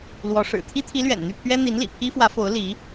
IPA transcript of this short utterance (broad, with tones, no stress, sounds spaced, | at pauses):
l w ɔ˧˥ ʂ ɻ̩˨˩ t̪ʰ i˥ t̪ʰ i˧˥ l ɥ ɛ̰˨˩ n n̪ y˥˩ pʰ ɥ ɛ˥ n̪ i˧˥ n l ḭ˨˩ pʰ i˥ f w ä˧˥ f o˧˥ ʊ̯ l i˧˥